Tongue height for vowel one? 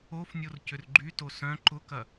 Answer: mid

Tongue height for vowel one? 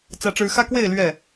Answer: low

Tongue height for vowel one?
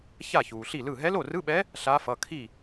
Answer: low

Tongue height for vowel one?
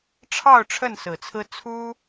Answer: low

